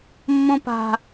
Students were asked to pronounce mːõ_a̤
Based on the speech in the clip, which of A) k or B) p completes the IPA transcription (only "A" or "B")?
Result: B